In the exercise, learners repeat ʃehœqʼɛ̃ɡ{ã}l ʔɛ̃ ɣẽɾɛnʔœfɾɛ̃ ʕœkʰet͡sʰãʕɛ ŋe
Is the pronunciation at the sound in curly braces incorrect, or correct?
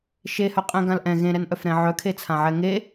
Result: correct